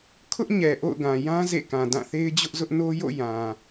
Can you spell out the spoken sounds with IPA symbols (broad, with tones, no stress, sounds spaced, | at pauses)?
kʰ ʊ˦ ʔ ɲ ɛ˨ ʔ o̰˦˨ ʊ̯ ɡ ã˨ j ã˦ z ḛ˦˨ k ã˨ d ã˦˨ θ e˦ ɪ̯ d͡ʑ ʊ˦ ʔ z ʊ˦ ʔ n o˦ j o̰˦˨ j ã˨